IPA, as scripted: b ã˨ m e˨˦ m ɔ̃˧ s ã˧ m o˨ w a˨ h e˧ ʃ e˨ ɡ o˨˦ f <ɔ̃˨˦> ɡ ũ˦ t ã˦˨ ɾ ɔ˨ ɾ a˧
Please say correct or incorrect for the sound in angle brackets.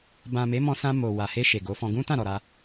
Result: incorrect